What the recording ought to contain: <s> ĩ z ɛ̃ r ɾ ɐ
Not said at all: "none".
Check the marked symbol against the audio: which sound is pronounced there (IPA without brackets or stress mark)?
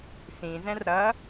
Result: s